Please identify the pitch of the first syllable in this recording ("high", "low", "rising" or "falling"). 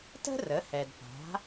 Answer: high